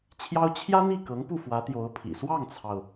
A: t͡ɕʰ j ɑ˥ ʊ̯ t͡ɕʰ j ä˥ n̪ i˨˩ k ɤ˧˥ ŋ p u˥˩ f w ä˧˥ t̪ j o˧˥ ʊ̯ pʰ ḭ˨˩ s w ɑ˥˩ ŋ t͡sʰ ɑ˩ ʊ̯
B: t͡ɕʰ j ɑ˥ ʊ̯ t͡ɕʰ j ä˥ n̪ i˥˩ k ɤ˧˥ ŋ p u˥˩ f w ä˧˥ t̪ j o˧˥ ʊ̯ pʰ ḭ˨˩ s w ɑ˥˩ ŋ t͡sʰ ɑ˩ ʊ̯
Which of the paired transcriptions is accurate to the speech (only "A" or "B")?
B